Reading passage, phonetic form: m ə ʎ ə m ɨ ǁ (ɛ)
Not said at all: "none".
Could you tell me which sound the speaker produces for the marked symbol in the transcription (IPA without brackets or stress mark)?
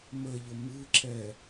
ɛ